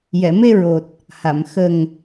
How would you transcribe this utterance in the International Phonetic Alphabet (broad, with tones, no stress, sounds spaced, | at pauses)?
j ɛ˨˩˨ m e˧ ɹ o˨˩ t̚ | h a˨˩˨ m x ə˨˩ ŋ